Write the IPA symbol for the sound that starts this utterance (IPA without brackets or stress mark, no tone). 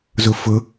z